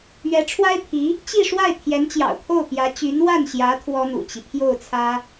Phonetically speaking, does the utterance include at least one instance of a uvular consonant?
no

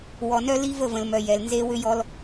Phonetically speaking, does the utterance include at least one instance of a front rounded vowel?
yes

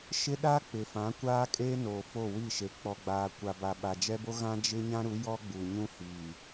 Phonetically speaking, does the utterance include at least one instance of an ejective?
yes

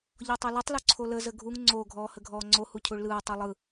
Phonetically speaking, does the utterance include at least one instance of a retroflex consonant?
yes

